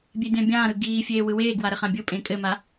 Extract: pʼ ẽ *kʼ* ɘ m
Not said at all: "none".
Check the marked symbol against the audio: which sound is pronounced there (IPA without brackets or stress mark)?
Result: kʼ